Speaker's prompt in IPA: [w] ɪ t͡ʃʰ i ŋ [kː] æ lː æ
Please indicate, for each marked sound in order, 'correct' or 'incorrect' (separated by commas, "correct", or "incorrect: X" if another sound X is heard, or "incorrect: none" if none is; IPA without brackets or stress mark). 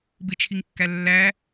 incorrect: b, correct